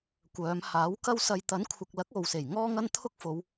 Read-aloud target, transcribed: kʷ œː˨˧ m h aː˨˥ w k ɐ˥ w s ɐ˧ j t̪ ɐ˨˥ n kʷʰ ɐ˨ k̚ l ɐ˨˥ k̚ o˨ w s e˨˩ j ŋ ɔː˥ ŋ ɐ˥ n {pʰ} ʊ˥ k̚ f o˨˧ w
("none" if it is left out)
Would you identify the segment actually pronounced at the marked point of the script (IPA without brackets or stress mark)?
t̪ʰ